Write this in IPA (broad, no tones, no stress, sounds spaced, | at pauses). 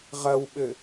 ʁ ɐ w ɓ ɘ